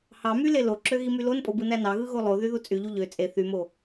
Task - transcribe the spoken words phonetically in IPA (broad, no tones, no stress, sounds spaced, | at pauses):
h ɑ m y l e l o ǁ ø ɣ i m y l o n pʼ o b ɯ n æ n ɑ ɣ ɯ ɣ o lˠ o ð y ð u t͡sʼ y ʎ u ʎ ø t͡sʼ e θ y m o